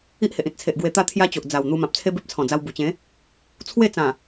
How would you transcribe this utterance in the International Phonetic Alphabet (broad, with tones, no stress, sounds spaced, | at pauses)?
i˦ ʔ h e˨ ʔ ĩ˨ t̚ t͡sʰ e˨ ʔ ɡ w e˧ t̪ a˥˧ t̪ʰ j a˦ t͡ɕ o˨ ʔ d͡z a˨˩ w n̪ u˧ m ã˨ p̚ t͡sʰ e˦ b e˦ p̚ t͡sʰ ɔ̃˨˩ d͡z a˧ w b u˨˩ t͡ɕ ẽ˨˦ | t͡sʰ w e˥˧ t͡s ã˨˩